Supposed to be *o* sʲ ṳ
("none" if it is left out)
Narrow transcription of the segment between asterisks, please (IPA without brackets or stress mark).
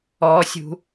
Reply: ɔ